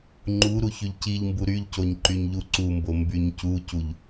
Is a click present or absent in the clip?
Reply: present